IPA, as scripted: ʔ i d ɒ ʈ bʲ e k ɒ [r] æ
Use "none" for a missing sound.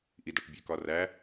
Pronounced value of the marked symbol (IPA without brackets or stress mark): r